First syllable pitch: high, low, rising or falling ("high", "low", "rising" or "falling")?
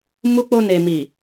high